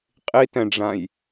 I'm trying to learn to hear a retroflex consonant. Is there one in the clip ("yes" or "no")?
yes